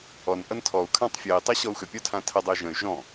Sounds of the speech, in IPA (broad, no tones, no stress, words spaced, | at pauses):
ɔnʔʌn tʰɔu̯kʰãtˤ fʲɜi̯tˤɜ ɕɔu̯xʏpʲɔ tʰãtʰədˤəy̯ ʒə̃y̯ ʒɔ̃